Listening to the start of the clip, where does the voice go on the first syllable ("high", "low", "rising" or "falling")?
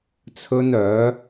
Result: high